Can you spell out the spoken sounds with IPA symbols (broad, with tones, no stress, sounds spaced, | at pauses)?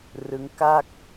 r ɯ˦˥ ŋ k a˥˩ k̚